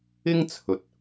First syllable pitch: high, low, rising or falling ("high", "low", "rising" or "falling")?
high